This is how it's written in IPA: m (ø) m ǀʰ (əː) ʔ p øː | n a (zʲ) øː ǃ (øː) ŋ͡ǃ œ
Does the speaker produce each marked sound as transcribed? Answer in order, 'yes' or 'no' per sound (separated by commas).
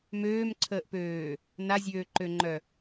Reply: no, yes, yes, no